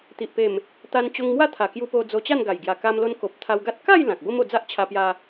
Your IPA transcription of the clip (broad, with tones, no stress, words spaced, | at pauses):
t̪i˨ʔpe˨˩m | t̪a˧nt͡ɕo˧ŋmwa˦ t̪ʰa˨˩kju˧po˧ d͡zo˧t͡ɕa˥˧nɡa˨˩j ɡja˨˩ka˧mlo˧nko˨p̚ t̪ʰa˧wɡa˦t̚ ka˥˧j lã˨k̚bo˦mo˧ d͡za˦ʔt͡ɕʰa˧pja˧